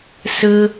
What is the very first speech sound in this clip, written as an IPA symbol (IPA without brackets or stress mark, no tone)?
s